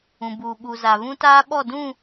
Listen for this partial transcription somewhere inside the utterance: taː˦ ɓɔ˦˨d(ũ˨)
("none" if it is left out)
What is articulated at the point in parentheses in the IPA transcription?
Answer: ũ˦˨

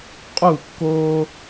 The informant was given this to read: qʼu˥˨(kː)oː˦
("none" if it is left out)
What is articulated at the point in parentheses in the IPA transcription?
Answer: kː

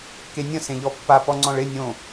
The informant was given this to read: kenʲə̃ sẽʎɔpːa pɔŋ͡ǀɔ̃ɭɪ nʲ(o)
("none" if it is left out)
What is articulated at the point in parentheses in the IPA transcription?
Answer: õ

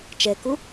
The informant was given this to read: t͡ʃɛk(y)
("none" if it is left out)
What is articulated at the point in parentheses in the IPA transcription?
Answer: u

